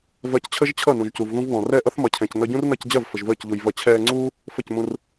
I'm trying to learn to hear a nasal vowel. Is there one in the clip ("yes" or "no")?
yes